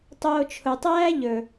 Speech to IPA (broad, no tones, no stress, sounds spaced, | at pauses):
tˤ oː t͡ʃʰ ʊ tˤ æː ʎ ɵ